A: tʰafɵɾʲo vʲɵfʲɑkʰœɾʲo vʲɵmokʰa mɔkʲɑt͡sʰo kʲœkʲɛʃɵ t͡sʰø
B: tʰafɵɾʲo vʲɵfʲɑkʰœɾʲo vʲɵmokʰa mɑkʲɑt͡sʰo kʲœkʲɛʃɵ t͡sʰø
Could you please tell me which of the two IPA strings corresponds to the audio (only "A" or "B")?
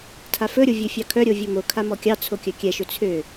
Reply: A